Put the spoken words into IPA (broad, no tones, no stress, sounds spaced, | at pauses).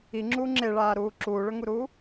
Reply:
i ŋ͡ǁ uː ŋ͡ǁ e ɭ aː ɾ uː ǁ uː ɭ ɵ ŋ u ɾ uː